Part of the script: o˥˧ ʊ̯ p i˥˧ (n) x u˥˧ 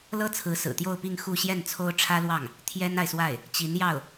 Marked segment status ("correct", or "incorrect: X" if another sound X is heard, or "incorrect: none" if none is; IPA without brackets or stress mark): incorrect: ŋ